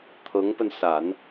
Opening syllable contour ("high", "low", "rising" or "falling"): rising